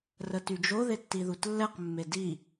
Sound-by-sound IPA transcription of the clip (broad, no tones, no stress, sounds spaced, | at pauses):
r ə t y d͡ʒ o ð e tː i ð u t lː ɛ q mː e d i